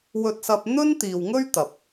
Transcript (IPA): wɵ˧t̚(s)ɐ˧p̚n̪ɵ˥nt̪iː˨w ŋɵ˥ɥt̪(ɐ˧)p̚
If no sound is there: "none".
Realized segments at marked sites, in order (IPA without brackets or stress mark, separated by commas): s, ɐ˨